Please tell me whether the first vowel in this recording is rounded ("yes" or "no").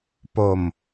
yes